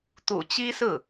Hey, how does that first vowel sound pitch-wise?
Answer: low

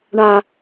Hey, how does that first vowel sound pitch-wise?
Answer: low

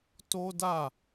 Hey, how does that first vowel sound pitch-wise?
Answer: high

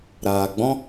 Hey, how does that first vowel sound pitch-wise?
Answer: low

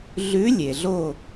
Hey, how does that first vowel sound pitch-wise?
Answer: rising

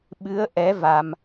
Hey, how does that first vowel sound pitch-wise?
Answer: rising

